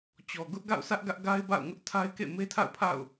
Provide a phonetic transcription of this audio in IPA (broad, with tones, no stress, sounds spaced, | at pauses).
t͡ɕ ɔ˨ ɡ ʊ˦ ʔ ɡ a̰˦˨ ʊ̯ sʰ ä˦ ʔ ɡ ä˦ ʔ ɡ a˦ ɪ̯ b a̰˦˨ ʊ̯ ŋ ʊ˦ ʔ tʰ a˦ ɪ̯ k ḛ˦˨ m e˦ tʰ a̰˦˨ ʊ̯ pʰ a̰˦˨ ʊ̯